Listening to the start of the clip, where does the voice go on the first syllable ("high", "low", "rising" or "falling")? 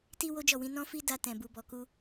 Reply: high